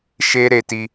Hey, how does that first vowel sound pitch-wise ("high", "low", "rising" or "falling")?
high